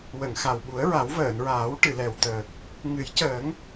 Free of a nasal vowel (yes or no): yes